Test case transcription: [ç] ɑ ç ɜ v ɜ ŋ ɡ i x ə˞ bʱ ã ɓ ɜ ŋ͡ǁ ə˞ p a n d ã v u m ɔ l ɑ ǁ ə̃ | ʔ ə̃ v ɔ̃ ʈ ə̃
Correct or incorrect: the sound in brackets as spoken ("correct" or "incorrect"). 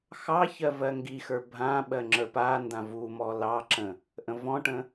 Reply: incorrect